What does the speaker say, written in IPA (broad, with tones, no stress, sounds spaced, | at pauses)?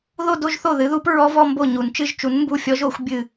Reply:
ð o˥˧ d o˥˧ ʒ θ o˥˩ ð ɨ˨˥ ð u˦˥ p ɹ ɔ˦˥ v ɔ˥˧ m b o˥˩ ɲ u˨˩˦ n t͡ʃ ɨ˥˧ ʒ t͡ʃ u˨˥ n m b u˥˩ fʲ ɔ˦˥ ʒ o˨˩˦ xʷ bʲ ɨ˥˩